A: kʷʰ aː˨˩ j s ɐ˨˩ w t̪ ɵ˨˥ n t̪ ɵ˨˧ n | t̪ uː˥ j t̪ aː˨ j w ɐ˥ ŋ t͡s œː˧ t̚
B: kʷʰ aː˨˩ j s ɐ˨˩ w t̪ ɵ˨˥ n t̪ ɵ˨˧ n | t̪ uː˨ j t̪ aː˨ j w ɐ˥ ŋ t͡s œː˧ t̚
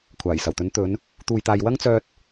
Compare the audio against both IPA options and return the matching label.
B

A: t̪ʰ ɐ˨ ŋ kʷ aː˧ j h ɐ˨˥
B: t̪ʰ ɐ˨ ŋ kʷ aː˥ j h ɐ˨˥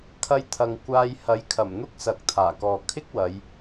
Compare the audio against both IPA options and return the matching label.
A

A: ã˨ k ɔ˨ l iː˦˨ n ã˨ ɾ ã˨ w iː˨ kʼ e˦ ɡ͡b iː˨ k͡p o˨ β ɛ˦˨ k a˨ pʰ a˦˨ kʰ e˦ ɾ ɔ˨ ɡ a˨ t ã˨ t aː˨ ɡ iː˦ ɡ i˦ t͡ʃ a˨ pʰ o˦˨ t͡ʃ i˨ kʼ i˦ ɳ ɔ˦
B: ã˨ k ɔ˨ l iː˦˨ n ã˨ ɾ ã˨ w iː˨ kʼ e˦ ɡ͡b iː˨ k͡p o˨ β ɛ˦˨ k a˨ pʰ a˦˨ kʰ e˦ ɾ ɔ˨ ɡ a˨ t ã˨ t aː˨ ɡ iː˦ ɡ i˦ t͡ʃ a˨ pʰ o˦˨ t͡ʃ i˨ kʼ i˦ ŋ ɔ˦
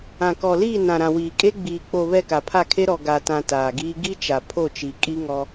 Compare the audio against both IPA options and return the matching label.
B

